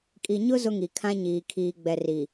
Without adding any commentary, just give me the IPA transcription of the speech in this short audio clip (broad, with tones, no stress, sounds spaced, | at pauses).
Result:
kʼ i˨ ɲ ʊ˦ z ʊ˦ ŋ i˨ kʰ ã˦ ɲ iː˨ kʰ iː˨ ɡ͡b ɛ˨ r i˨